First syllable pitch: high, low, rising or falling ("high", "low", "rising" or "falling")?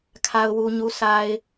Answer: low